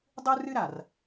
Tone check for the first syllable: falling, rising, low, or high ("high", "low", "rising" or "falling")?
high